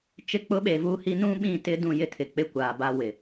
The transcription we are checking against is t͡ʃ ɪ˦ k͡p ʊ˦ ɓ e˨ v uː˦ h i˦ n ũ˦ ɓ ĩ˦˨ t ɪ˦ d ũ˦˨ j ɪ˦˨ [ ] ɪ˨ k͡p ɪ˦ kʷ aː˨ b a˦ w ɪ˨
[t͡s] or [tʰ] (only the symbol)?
tʰ